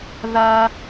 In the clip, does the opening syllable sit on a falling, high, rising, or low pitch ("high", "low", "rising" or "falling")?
high